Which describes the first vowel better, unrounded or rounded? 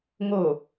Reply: rounded